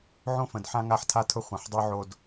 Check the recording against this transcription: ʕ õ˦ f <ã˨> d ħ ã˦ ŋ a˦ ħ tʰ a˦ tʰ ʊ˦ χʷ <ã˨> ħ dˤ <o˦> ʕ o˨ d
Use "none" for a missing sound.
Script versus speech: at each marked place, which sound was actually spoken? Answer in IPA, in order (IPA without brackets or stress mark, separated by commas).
ə̃˨, ã˨, o˦